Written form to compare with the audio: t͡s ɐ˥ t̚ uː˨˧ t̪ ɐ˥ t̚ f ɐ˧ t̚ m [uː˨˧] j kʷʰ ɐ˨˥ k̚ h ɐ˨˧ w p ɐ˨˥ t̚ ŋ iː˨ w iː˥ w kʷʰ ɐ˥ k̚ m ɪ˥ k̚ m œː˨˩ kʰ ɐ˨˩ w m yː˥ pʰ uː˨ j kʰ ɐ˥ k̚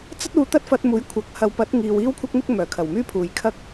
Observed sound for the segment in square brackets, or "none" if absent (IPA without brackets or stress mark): uː˨˥